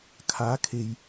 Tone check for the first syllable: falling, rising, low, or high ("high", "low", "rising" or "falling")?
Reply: rising